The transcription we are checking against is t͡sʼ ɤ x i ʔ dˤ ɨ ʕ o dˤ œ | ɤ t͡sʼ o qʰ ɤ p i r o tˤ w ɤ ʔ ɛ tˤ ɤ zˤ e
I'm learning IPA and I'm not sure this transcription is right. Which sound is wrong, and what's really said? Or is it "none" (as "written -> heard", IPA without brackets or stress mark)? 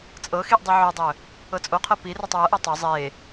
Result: none